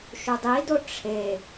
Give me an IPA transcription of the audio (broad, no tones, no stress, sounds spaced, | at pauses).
ʃ u dˤ i d o ʈ͡ʂʰ e